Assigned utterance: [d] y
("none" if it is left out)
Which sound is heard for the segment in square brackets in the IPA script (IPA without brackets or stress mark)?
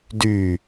d